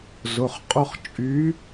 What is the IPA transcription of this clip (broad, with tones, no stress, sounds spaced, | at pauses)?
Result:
z ʊ˩˧˩ χ qʼ ʊ˥˧ χ t͡ʃʼ y˨˦